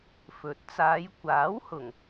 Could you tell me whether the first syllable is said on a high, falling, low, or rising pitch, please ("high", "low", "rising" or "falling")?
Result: low